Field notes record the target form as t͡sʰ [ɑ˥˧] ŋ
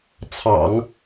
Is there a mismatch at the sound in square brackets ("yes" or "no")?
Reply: yes